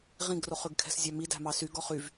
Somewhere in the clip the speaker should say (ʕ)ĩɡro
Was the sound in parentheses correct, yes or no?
no